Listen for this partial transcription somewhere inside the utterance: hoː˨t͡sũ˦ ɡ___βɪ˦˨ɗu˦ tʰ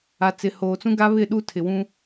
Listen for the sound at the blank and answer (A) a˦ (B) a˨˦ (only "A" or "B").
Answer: A